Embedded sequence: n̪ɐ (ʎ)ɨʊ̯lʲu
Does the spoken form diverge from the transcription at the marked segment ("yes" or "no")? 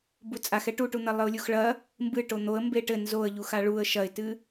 yes